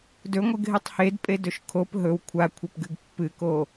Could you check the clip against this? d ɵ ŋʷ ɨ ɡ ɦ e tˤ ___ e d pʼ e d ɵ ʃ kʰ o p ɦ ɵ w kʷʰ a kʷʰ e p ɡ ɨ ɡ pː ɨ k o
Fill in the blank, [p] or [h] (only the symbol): h